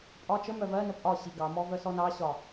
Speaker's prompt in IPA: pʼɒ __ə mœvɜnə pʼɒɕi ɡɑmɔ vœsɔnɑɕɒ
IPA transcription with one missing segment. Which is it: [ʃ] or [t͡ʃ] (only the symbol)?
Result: t͡ʃ